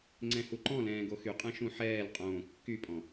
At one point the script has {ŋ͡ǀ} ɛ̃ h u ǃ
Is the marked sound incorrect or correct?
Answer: correct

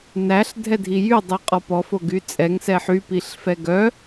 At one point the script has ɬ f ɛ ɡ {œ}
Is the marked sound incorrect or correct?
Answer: correct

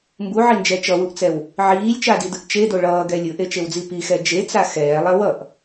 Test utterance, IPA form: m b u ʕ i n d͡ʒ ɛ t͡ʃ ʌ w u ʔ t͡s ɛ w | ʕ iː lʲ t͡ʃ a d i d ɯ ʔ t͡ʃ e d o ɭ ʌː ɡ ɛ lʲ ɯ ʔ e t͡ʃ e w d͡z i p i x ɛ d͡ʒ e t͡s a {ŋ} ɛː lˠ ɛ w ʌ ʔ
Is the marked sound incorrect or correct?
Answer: incorrect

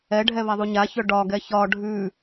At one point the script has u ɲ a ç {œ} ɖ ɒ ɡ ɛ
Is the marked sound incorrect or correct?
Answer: correct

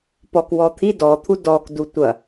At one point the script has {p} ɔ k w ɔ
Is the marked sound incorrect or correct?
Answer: correct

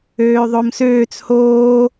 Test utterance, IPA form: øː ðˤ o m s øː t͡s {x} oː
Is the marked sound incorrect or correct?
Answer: incorrect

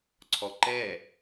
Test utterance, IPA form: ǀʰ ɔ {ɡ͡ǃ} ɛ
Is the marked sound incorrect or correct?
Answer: incorrect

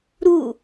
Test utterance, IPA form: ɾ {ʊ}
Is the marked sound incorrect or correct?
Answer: incorrect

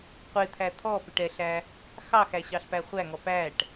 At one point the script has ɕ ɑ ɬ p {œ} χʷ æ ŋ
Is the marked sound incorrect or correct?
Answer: incorrect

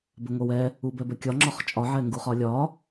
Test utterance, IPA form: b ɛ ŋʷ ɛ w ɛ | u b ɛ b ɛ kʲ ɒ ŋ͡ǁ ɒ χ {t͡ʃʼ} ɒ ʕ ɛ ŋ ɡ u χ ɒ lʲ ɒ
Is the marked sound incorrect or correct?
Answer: correct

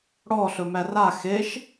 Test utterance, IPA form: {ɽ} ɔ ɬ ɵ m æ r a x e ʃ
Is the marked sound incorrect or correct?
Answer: correct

